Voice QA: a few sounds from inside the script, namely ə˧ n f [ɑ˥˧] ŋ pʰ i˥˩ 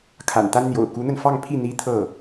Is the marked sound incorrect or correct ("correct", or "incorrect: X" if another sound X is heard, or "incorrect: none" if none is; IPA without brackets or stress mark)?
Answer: correct